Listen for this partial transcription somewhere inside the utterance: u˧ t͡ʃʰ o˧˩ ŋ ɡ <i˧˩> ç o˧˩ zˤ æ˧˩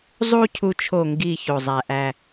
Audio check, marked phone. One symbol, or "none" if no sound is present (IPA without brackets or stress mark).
i˧˩